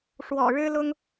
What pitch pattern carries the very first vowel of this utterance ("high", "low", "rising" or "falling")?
low